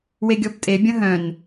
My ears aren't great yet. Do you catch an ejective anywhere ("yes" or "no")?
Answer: yes